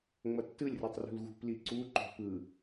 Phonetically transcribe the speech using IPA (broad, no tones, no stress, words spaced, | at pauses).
ŋ͡mʌtːɯlʲrɯtˤ rṳlɣṳpli ǀuǃo̤ pɯ